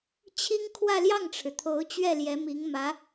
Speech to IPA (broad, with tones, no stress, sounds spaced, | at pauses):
t͡ɕʰ i˥ ŋ kʰ w ä˥˧ l j ɑ˥˩ ŋ ʈ͡ʂʰ ɻ̩˩ t̪ʰ o˧˥ ʊ̯ t͡ɕ ɥ ɛ˥˩ l j ɛ˧˥ m i˧˥ ŋ m ä˧˥